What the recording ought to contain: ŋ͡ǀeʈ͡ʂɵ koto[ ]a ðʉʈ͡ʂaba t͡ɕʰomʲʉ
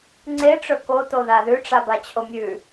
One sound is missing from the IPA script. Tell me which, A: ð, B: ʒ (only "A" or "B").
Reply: A